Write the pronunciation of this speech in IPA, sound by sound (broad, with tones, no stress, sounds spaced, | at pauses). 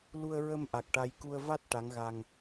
l u˧ ə̯ ɹ ə˧ m ʔ a˨˩ k̚ ʈ a˧ j k u˧ ə̯ v a˦˥ t̚ ʈ a˧˥ ŋ ɣ a˧ ŋ